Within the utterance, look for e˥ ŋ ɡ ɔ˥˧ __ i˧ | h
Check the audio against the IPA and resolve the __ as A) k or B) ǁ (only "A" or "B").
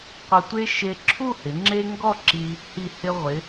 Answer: B